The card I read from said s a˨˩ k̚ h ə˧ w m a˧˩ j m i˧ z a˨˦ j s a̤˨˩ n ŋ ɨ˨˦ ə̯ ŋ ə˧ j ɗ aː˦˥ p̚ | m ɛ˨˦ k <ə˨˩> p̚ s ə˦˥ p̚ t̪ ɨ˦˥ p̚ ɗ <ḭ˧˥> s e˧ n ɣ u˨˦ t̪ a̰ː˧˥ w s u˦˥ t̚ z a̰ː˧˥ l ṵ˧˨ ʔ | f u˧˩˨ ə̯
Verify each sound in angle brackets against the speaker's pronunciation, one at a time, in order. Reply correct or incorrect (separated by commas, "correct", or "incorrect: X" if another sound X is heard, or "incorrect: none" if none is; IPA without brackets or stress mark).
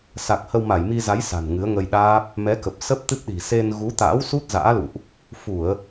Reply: correct, incorrect: i̤˨˩